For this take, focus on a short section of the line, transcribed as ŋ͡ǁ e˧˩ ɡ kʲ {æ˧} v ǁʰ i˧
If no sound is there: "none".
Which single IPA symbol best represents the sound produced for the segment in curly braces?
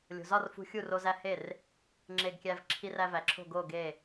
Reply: æ˧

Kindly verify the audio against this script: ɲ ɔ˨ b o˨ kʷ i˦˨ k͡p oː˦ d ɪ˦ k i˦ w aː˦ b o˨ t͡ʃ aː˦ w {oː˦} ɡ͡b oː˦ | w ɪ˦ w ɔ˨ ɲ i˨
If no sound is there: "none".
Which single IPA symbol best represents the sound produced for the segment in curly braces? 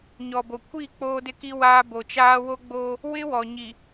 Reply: o˦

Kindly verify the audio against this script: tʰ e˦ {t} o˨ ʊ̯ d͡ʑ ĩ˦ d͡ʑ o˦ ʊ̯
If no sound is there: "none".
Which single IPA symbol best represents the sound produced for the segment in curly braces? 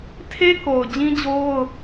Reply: k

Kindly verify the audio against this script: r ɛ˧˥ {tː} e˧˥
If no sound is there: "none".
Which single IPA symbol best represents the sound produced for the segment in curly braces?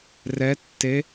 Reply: tː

